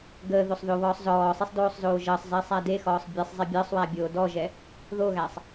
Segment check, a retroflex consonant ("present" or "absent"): absent